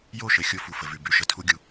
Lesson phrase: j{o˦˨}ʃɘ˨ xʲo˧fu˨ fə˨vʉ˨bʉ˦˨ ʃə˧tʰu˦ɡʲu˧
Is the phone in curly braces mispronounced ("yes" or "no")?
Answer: no